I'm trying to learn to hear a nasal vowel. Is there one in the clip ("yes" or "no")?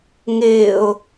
no